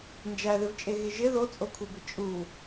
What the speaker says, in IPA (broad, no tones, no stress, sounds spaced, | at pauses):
n d͡ʒ æ ð ɪ v t͡ʃʼ e ɣ ɪ ʒ ɪ ð o t͡sʼ o kʷʰ e b ɪ t͡ʃʼ u